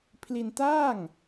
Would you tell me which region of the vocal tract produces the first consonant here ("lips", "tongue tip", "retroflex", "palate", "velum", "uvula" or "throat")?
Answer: lips